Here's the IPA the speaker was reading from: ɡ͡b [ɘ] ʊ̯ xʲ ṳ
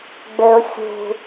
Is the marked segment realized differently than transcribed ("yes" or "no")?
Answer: no